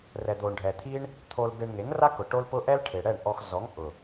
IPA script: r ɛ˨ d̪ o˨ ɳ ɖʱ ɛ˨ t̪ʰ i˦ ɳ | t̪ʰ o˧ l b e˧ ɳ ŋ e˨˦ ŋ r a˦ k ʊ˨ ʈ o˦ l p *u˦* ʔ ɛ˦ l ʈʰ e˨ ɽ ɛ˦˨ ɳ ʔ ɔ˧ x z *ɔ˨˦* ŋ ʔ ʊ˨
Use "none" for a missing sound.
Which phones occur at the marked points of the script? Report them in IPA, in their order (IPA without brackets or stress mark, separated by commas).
ʊ˦, ɔ˨˦